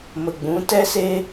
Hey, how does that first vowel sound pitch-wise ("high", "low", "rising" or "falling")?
low